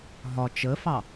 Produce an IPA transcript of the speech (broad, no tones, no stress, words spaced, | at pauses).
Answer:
ɦɒ t͡ʃəfɑ